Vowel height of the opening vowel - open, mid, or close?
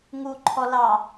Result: close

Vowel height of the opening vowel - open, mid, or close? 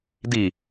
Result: close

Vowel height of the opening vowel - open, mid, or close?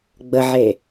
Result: mid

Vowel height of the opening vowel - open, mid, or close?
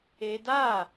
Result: mid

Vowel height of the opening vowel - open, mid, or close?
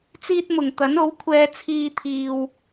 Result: close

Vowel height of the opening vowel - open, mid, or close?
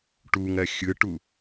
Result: close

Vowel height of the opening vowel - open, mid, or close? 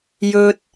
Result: mid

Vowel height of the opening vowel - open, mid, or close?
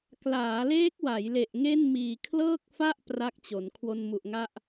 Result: open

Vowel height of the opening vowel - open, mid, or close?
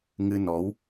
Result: close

